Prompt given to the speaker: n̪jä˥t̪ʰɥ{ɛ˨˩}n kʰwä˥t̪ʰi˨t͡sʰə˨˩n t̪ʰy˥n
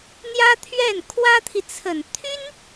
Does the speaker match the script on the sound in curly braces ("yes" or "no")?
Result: no